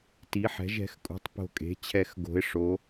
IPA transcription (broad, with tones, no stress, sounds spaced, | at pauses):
t i˩˥ ħ ɛ̤˩˥ ʒ ɛ̤˩˥ x kʼ ṳ˩˥ tˤ p o̤˧˩ kʼ e̤˩˥ t͡ɕʰ ɛ˧˩ x ɡ o̤˩˥ ɪ̯ ʂ o˩˥